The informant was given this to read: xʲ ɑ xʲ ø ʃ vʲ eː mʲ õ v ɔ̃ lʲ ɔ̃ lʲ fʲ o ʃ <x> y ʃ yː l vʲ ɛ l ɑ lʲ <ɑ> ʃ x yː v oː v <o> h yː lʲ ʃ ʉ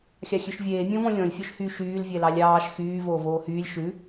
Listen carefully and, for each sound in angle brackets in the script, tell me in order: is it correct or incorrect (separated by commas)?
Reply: incorrect, incorrect, incorrect